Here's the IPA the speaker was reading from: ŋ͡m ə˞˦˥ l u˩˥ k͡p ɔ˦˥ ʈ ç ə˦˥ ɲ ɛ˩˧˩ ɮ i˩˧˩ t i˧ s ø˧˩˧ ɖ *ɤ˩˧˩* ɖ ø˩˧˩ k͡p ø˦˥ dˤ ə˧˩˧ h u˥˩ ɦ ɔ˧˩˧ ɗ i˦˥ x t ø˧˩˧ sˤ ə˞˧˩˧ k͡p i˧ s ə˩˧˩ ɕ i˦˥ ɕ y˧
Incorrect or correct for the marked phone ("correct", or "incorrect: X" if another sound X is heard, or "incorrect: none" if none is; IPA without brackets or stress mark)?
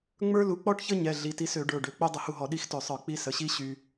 incorrect: ə˞˩˧˩